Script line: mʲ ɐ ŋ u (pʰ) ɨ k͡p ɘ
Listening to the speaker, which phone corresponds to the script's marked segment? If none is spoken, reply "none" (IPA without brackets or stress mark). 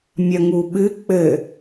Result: ɓ